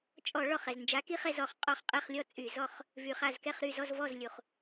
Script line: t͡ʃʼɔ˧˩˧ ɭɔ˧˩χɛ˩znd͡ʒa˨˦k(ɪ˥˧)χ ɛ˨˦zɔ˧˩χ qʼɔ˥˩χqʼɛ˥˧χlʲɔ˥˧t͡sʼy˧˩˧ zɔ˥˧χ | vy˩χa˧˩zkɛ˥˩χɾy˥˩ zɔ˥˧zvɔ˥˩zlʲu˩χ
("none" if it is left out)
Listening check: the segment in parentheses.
i˥˧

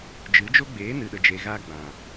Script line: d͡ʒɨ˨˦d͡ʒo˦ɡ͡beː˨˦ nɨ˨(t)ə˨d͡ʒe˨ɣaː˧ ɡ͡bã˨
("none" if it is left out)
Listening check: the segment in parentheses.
ɗ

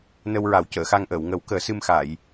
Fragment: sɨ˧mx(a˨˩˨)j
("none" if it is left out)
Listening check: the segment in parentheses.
a˨˩˨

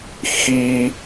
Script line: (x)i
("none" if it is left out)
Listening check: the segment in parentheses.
x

